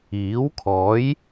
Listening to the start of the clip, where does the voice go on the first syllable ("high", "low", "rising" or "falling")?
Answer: rising